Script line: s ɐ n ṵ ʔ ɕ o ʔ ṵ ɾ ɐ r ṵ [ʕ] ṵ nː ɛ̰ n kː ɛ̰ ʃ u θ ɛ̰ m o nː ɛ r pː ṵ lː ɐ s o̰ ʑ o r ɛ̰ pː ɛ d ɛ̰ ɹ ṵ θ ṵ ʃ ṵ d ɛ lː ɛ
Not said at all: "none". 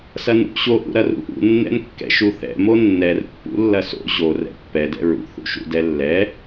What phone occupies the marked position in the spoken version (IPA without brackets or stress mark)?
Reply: ʔ